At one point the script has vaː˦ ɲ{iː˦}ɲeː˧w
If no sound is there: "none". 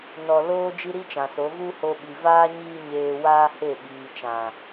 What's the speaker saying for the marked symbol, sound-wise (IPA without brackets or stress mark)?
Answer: iː˦